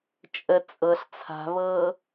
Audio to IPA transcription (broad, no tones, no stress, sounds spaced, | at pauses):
t͡ʃʼ ə t͡sʼ ɤ ɬ t͡sʰ a̤ β ɤː